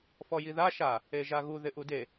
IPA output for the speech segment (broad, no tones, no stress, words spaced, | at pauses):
fɔjiða ʃa | eʒaɣu ðɪʔude